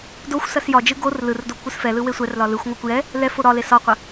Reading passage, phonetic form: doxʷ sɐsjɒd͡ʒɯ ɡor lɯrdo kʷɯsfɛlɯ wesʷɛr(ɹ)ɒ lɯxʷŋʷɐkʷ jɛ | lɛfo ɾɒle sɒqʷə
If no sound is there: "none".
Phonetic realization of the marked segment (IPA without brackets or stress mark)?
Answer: l